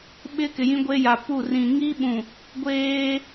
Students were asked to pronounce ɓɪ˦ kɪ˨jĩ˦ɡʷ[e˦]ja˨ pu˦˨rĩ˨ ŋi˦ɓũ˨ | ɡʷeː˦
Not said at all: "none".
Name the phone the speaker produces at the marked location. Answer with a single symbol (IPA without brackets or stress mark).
e˦